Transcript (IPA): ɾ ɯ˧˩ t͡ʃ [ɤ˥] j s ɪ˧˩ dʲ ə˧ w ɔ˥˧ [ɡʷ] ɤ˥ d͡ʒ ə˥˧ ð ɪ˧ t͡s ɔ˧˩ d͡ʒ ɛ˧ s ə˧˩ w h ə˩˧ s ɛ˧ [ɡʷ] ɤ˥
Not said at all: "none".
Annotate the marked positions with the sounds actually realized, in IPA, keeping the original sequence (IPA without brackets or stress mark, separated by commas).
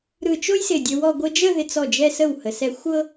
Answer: o˥, ɡʷ, xʷ